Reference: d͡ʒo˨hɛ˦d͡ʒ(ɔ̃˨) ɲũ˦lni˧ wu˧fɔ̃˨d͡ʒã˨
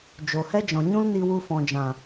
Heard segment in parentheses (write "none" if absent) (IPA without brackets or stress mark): ɔ̃˨